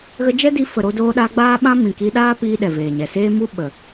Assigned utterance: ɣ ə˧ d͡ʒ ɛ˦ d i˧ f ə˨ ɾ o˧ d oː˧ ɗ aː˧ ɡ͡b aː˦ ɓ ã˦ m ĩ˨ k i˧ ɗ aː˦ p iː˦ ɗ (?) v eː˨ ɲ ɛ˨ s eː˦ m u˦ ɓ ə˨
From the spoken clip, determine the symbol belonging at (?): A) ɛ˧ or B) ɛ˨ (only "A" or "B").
B